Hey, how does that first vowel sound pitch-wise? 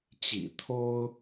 low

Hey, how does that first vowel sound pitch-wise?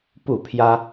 falling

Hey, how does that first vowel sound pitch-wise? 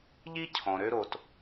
high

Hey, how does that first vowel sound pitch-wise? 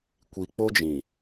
low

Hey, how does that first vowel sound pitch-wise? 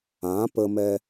rising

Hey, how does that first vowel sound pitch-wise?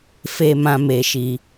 high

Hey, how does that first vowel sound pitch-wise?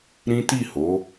high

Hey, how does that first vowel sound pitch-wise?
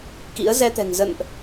rising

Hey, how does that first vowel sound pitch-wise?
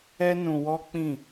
high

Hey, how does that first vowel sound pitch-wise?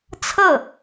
falling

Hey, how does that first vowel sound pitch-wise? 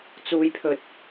high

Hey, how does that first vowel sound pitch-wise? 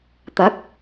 rising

